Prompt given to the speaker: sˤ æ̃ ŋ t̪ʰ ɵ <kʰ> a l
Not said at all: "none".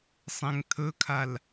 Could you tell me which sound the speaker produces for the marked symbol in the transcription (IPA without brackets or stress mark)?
kʰ